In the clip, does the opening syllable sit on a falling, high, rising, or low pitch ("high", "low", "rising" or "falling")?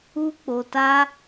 high